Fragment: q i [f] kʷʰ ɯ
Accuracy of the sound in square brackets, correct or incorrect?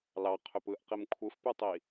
incorrect